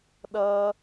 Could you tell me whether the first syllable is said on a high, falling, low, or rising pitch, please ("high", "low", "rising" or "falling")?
high